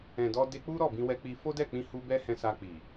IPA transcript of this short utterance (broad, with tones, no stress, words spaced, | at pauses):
ɛ̃˨dɔ˧ de˧k͡pu˦ ɾɔ˦˨bĩ˧wɛ˧k͡pi˧ fo˦dɛ˦˨k͡pĩ˧hu˧ bɛ˦hɛ̃˧sa˧ k͡pi˨